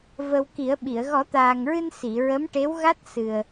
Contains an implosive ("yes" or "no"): yes